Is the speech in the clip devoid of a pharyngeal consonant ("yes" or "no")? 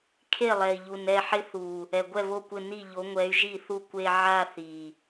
no